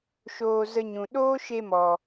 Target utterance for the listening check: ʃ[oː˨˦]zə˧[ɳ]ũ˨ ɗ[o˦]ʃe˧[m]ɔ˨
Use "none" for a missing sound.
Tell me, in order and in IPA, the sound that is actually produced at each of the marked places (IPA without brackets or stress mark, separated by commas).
oː˧, ɲ, oː˦, m